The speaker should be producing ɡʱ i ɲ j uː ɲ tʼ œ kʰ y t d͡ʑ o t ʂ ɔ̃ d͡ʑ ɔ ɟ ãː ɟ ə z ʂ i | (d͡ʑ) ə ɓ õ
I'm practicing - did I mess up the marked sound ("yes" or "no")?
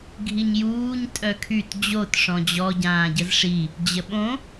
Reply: no